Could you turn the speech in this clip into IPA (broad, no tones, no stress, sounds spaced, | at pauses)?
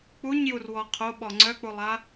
k͡p u ɲ j u r w ɔ qʰ o ɓ ɔ ŋ͡ǀ œ k͡p u lˠ a